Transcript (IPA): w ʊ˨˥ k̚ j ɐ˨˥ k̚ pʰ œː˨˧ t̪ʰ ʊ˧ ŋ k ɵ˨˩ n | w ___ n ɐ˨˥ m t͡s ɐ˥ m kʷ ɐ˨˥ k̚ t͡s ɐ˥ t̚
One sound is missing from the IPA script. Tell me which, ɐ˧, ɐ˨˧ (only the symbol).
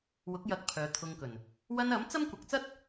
ɐ˧